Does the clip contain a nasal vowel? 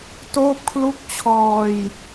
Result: no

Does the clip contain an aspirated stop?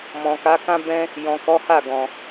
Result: no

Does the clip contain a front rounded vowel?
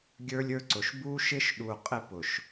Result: no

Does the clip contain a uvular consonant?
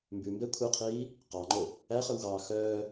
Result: yes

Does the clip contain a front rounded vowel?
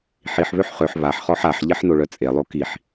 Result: yes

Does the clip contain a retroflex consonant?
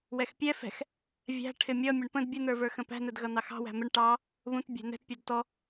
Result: yes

